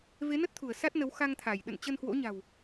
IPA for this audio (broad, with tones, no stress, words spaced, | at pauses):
ve˨˦nə˦˥t̚t̪ʰu˧˩ə̯ sa˦˥t̚nə˨˦wxa˧ŋ t̪ʰa˧˩j ɗə̰˧˨n t͡ɕə˧nhwo̰˧˥ɲa̤˨˩w